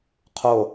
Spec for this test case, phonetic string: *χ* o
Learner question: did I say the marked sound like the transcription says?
no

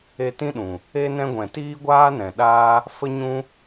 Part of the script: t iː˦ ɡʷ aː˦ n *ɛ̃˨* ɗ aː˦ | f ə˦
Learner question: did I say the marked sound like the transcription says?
yes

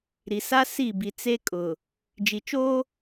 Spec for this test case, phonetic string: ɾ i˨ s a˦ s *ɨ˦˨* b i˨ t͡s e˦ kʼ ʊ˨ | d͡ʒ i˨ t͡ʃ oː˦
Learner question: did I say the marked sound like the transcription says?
no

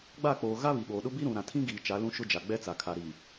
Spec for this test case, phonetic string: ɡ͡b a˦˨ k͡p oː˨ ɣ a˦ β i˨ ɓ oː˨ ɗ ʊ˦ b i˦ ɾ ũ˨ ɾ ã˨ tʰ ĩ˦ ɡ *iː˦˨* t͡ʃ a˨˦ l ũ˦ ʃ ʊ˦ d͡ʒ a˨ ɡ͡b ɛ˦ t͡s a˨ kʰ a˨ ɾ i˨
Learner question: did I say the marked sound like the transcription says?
no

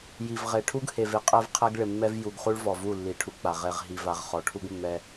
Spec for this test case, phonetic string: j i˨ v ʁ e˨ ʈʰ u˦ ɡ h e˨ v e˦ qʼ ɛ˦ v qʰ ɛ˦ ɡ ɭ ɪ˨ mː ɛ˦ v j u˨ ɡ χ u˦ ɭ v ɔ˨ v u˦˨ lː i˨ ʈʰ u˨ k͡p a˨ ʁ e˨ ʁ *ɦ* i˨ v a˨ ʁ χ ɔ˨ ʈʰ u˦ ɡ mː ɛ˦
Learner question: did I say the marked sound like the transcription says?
yes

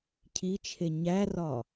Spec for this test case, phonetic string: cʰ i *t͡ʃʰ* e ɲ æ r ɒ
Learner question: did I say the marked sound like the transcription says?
yes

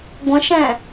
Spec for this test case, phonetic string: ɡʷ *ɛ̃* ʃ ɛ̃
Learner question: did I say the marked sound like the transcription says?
no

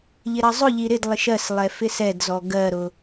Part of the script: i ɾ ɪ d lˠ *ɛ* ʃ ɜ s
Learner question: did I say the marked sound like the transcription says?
no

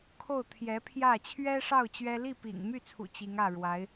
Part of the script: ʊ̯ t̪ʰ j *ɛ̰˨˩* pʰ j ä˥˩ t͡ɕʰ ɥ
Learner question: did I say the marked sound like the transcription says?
no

